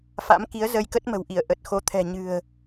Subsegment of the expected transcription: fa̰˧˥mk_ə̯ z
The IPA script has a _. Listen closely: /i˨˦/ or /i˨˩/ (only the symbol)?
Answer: i˨˦